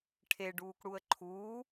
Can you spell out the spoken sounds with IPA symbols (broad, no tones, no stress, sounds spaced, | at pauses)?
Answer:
ʈʰ e ɖ uː k ɽ u ə̯ ǃʰ uː